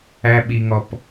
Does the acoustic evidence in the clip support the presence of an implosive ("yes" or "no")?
yes